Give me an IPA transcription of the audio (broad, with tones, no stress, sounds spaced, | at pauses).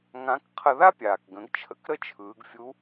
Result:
ŋ ã˧˥ k qʰ ə˧ ð a˥ pʲ aː˩ k ɡ ə̃˩˧ ɡ t͡ʃʰ ə̰˧˥ k ɾ ə˥ t͡ʃʰ ɯː˩˧ ɡ fʲ u˧˥